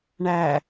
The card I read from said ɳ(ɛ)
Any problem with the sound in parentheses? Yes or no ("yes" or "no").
yes